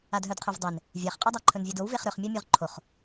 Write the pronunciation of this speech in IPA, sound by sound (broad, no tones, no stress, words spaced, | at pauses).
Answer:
adɦœdqʰœvdˤen | vʲaχqʼœdˤa ǃʰɵnvʲedowveχ ɾɵχmʲamʲœʁ ǃʰoχ